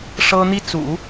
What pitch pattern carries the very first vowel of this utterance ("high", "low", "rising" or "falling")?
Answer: high